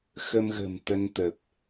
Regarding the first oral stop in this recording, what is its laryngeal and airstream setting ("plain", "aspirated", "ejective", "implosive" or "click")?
plain